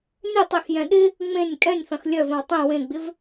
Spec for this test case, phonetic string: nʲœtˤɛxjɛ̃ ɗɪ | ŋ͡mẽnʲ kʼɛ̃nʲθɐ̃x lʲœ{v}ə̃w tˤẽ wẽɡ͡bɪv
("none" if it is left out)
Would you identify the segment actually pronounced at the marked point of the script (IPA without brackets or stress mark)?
v